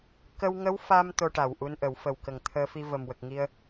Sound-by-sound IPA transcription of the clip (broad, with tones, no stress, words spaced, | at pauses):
kə˧wŋə˧˥w fa˧m t̪o˧ʈa˨˩wʔu˧nʔə˨˩˦w fə˨˩wkə˨˩ŋt̪ʰəː˧fi˧ və˨˩mwə˨˩k̚ŋi˧ə̯